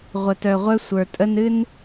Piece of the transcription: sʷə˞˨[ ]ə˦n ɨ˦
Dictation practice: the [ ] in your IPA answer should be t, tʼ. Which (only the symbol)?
tʼ